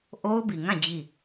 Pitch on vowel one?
high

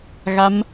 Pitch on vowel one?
rising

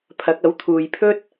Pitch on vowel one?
rising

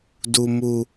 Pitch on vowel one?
low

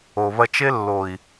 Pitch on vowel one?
low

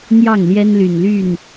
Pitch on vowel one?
falling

